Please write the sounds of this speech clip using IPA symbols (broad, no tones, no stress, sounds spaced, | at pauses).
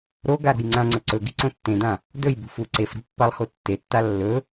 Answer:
ɾ o ɡ a ɾ o̤ j ŋ͡ǀ ã ŋ͡ǀ ɵ ǀ ɵ ɡ i̤ ǀ õ tː ẽ d ã | d ɵ j b ṳ f u ǀ e f ɾ ṳ pː a lˠ h o tː e tː a lː ɵ